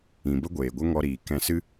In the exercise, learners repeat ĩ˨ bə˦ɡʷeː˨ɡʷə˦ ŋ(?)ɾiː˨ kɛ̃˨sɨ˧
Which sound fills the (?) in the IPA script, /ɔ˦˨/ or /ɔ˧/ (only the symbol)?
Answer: ɔ˧